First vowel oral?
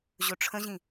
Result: yes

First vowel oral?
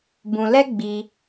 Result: no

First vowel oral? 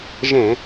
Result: no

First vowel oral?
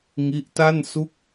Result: yes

